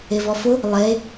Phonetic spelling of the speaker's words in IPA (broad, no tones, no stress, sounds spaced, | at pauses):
e v ɔ f ʊ | lˠ e